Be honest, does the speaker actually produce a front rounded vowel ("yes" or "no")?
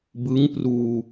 no